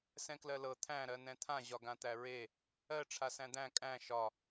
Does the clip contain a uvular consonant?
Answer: no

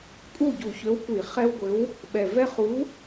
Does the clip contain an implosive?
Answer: yes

